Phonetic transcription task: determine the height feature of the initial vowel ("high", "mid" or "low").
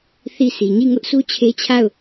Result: high